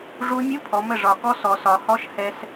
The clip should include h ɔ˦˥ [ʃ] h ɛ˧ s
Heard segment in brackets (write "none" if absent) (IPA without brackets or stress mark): ʃ